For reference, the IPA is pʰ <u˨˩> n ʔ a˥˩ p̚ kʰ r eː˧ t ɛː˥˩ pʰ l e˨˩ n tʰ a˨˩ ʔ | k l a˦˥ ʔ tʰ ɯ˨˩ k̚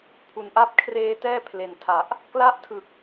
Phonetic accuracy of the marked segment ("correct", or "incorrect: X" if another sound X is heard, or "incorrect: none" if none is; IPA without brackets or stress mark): correct